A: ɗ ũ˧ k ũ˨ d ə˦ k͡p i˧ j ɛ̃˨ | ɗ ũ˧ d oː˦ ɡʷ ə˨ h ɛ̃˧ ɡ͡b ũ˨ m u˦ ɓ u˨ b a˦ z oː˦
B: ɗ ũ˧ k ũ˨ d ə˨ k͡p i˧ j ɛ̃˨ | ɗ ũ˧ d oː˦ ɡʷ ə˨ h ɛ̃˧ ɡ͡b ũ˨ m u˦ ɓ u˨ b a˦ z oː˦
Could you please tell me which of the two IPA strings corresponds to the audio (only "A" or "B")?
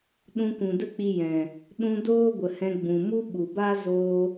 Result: A